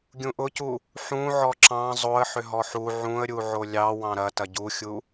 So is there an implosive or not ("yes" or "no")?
no